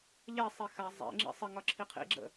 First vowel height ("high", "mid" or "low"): mid